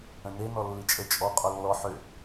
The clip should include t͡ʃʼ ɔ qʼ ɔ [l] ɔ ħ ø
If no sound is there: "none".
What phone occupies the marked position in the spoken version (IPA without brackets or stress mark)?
lː